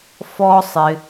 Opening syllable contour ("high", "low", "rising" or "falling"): high